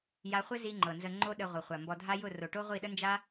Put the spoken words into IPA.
ja˧χʷɘ˦zi˧ ŋ͡ǃɤ˨nzə˧ŋ͡ǃo˦ɗə˧ ʁʷɤ˨χʷa˨ mbɔ˧dʱa˦ jʊ˦˨ro˨ ʈo˦ʁʷi˦˨ɗə˦nd͡ʒa˦

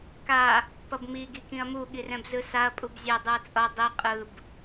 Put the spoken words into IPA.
ka | pʌbmi ɡikĩɐ̯mu ɠirɛ̃bzɯsaɐ̯ pʼubzʲɛ dˤɯɐ̯t͡sʼʌ dˤi qʼɯb

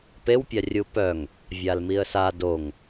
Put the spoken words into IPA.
pewpʲa rʲupœŋ | vʲalmiə̯sa doŋ

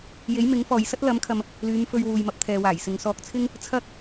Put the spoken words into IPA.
je˨˥jmɪ˨˥ŋfɔː˨j sɐ˥t̚lɐ˨˥mkʰɐ˨m | lyː˨˧mfɵ˧ɥwuː˨j mɐ˧p̚t̪ʰɛː˨waː˨˩jsɪ˨ŋ sɔː˧k̚t͡sʰɪ˥ŋ | t͡sʰɐ˥k̚

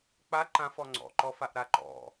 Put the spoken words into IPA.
k͡pa ǃãfɔ ŋ͡ǀɔ̰ǃɔfaʔɾa ǃɔ̰

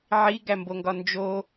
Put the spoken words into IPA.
ʕiɡæmboŋɡɒ nd͡ʒo

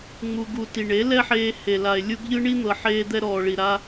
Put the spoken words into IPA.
ŋ͡mu˧ɡu˧ ti˨ɳe˨˦lɛ˦ħeː˧ he˨la˨e̯ lʲu˧ɡʎɯ˦ɳi˦n̪ɤ˨ ħeː˧d̪ɛ˧ɾɔː˨ ɭi˨ɾa˦

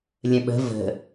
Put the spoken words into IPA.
lʲə̃ɓə̤ və̤

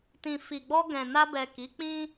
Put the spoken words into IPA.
tĩ˨fi˨ɡ͡bɔ˧ɡɛ̃˨ na˧bɛ˨ ki˨˦k͡pĩ˦

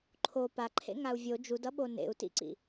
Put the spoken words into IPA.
ǃʰo paǃʰḛŋau̯ vʲo d͡ʒudʌɓo nḛu̯tḭǀḭ

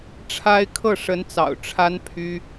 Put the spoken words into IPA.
ʈ͡ʂʰa˥ɪ̯ kʰɤ˥˩ʂə˧˥nt͡sɑ̰˨˩ʊ̯ ʈ͡ʂʰa˥n pʰy˥

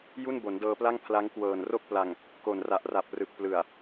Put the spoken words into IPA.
ju˥˩n bo˩˦ndɤː˧pla˥˩ŋ pʰla˦˥ŋkwɤː˨˩n ro˥˩k̚pla˨˩ŋ | ko˨˩nra˨˩ʔra˨˩p̚ rɯ˨˩k̚plɯ˨˩a̯

